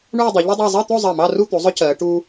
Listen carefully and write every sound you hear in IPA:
ɳ uː˥˧ dˤ e˩˧ ʎ ɵ˥ dˤ ɑ˥˧ zˤ ɜ˥˧ t̪ o˥˧ zˤ ɜ˧˩ m ɑ˥˧ r u˥˧ t̪ u˩˧ zˤ ɵ˥ c ɜː˩˧ ʈ uː˧

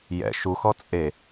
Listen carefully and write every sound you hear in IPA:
j ɛ̰ ʃ u x ɔ t͡sʼ e

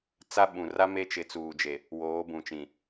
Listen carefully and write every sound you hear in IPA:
t͡s a˦ ɓ ũ˨ r a˦ m e˦ t͡ʃ ɪ˨˦ t͡s uː˨ d͡ʒ e˨ | w oː˨˦ b ũ˨ t͡ʃ ĩ˨

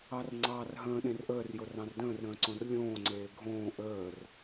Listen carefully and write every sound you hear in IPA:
ɑ r ŋ͡ǀ ɑː r ɦ ə̃ː ɗ ẽ r ʔ əː r j o r ɑ̃ r d ə̃ː r ɾ ə̃ː ǀ õ r lʲ õː ŋ͡ǀ eː ɡʱ õː ʔ əː r

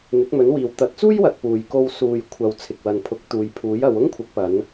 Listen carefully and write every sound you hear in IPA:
n̪ ɪ˨˥ k̚ m ɵ˨˥ n w iː˨ w t̪ ɐ˨˥ t̚ t͡s uː˥ j w ɐ˨ t̚ p uː˨ j k o˧ w s uː˨ j kʷʰ ɐ˨ w t͡sʰ ɪ˨ k̚ w ɐ˨ n pʰ ʊ˨˥ k̚ t̪ uː˨ j pʰ uː˨˥ j ɐ˨˧ w ʊ˥ ŋ kʷʰ ɪ˨˥ k̚ p ɐ˨˧ n

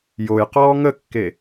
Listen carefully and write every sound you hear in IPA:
j o j q ɔː ŋ ə kː e

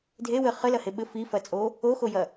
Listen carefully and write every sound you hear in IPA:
dʱ e w ɘ χ ɘ l ɐ h e ɓ ɘ f i f ɐ t͡sʼ o | o x o j ɐ

